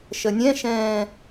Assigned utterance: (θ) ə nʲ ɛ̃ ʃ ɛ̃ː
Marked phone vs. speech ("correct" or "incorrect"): incorrect